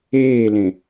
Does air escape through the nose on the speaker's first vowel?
no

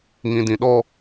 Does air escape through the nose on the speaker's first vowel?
yes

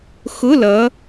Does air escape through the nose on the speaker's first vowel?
no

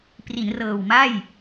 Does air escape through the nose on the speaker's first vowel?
no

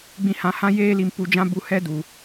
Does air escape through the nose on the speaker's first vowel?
yes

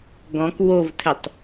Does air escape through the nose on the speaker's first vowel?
yes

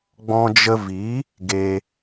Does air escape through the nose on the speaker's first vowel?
yes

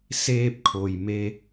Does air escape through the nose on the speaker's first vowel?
no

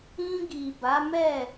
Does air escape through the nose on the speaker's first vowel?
yes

